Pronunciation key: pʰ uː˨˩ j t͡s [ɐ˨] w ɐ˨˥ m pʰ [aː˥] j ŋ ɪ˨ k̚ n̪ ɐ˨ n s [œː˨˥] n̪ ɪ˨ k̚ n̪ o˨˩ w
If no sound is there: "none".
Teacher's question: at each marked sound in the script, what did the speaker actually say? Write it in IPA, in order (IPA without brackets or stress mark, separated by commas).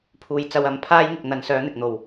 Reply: ɐ˨, aː˥, œː˨˥